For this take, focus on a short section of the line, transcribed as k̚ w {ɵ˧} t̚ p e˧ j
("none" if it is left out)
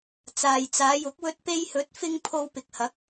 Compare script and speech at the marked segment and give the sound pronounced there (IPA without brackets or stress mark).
ɵ˧